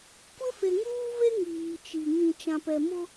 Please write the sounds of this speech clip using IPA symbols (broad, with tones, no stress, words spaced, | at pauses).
kʷɪ˦ fe˨ŋuː˦ve˦ ŋiː˨t͡ʃi˨ ŋĩ˨t͡ʃã˨pɛ˨ mʊ˦